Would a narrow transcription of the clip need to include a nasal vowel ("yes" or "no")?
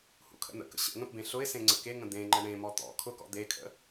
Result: yes